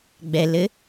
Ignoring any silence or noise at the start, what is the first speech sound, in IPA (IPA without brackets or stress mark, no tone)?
ɡ͡b